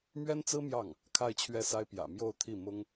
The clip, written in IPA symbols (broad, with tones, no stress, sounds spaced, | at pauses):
m ɥ ɛ˥ n t͡s ɹ̩˥ m j ɑ˥˩ ŋ | kʰ a˥˧ ɪ̯ t͡ɕʰ ɥ ɛ˥˩ s a˥ ɪ̯ p j ä̰˨˩ m j o˥˧ ʊ̯ t̪ʰ i˥˩ m ʊ˥ ŋ